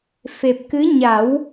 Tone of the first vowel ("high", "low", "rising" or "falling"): low